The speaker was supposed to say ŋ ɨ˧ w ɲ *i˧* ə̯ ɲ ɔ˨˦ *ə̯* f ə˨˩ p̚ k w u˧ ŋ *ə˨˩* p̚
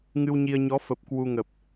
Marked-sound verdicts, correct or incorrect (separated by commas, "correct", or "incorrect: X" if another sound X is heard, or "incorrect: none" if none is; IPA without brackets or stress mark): correct, incorrect: none, correct